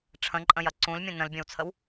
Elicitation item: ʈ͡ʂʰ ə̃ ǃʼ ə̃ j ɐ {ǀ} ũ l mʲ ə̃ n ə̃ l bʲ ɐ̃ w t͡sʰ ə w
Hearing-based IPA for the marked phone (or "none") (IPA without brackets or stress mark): ǀ